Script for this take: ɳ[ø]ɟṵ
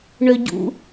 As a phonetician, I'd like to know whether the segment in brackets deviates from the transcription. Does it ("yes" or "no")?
no